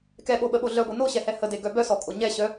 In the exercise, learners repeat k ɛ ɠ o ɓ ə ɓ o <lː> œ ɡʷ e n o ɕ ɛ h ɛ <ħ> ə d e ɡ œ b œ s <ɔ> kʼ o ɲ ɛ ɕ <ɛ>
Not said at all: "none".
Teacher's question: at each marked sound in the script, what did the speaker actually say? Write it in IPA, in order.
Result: ɮ, h, ɔ, œ

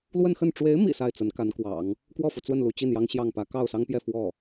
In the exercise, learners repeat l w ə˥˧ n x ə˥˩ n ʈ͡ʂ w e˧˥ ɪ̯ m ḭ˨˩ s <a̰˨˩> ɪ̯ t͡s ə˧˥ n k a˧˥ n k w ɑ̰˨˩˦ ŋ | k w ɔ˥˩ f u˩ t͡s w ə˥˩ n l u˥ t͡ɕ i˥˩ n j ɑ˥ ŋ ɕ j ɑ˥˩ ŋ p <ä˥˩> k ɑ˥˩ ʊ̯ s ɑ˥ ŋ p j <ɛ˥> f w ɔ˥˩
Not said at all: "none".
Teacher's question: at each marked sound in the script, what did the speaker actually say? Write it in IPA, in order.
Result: a˥˩, ä˧˥, ɛ˥˧

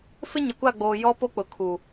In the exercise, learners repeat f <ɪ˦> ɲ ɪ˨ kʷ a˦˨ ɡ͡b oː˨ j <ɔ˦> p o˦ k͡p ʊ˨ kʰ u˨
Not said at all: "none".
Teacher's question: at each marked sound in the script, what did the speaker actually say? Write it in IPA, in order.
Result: ɪ˦, ɔ˦

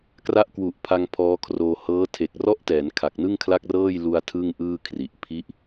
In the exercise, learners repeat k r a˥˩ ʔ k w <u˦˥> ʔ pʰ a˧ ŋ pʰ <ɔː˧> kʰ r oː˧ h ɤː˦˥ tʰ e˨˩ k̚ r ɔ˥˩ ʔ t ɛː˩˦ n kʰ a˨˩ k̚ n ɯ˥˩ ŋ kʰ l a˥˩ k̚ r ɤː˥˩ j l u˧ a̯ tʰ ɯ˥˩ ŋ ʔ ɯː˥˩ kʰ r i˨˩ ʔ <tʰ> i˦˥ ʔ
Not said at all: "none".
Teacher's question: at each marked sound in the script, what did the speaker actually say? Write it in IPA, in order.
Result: u˨˩, ɔː˦˥, pʰ

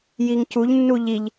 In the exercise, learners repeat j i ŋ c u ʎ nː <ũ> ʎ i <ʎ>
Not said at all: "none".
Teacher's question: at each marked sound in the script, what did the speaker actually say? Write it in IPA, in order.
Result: u, ʎ

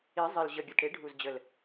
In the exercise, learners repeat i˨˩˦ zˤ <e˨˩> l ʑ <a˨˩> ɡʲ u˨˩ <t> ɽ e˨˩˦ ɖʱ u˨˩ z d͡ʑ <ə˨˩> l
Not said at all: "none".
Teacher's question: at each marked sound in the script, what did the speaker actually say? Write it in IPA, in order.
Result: i˨˩, ə˨˩, t, ə˨˩

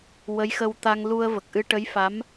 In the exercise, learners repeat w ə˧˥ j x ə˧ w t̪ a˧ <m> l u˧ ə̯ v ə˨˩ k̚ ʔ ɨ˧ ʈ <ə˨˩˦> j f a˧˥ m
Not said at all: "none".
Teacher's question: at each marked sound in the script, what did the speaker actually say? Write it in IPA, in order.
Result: ŋ, ə˧˥

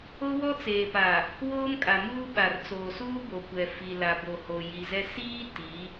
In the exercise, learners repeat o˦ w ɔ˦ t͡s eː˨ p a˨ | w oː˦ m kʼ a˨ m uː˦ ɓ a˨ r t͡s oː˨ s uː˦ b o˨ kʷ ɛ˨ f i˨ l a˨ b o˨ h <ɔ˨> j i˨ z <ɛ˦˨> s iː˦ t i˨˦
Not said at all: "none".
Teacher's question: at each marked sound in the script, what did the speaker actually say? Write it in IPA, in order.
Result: o˨, ɛ˦

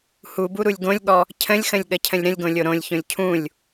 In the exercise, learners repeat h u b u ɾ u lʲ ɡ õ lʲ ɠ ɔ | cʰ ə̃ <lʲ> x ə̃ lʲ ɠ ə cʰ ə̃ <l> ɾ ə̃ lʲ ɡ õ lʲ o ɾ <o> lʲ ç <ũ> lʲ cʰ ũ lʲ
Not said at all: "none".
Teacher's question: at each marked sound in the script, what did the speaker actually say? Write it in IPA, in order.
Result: lʲ, lʲ, õ, õ

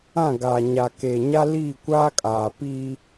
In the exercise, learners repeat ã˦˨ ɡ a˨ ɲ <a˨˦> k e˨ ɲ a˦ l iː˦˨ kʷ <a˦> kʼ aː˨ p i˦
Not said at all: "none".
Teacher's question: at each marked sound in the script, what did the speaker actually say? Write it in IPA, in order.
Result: a˨, aː˦

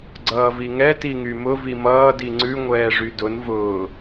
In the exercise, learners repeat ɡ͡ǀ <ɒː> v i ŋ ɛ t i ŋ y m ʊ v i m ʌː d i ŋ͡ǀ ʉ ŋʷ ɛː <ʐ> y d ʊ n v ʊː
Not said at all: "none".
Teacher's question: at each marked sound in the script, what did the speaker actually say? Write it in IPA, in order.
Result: ʌː, ʐ

